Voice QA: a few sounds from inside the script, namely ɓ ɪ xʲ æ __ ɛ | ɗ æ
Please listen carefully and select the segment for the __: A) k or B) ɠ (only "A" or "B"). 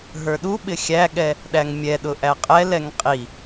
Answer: B